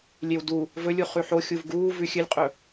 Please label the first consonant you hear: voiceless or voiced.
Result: voiced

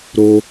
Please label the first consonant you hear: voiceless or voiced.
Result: voiced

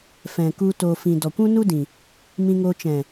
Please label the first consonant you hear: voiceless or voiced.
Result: voiceless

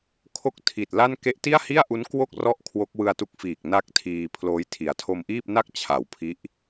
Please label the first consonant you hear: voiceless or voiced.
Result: voiceless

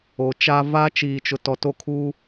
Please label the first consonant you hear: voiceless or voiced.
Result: voiceless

